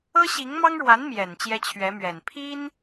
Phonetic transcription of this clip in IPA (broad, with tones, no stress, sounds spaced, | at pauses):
ɤ˥ ɕ i˧˥ ŋ m ɑ˥ ŋ ɻ w a˧˥ n m j ɛ˨˩ n t͡ɕ j ɛ˥ t͡ɕʰ ɥ ɛ˧˥ m ɥ ɛ˨˩ n pʰ i˥ n